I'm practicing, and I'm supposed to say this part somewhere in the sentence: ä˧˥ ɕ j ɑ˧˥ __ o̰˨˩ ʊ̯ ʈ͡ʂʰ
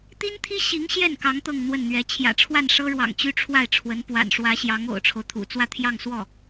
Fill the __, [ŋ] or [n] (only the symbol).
ŋ